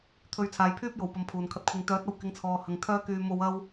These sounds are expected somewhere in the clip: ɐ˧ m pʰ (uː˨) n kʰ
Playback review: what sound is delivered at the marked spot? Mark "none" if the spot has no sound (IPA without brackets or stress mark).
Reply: uː˨